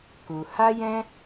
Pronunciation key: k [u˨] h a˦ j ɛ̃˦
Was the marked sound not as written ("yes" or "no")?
no